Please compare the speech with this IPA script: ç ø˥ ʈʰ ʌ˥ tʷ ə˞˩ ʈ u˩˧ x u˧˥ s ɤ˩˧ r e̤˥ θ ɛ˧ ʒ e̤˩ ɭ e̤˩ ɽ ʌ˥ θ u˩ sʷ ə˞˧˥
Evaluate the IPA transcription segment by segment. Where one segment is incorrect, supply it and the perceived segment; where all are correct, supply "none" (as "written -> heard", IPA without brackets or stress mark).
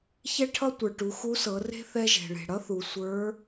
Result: ø˥ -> ɛ˥